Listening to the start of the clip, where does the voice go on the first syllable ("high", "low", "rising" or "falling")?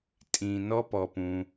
low